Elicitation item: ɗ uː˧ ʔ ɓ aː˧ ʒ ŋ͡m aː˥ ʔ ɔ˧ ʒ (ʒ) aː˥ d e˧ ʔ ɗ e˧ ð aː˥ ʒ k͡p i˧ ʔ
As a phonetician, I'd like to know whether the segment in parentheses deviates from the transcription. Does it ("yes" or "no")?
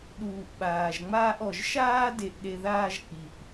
yes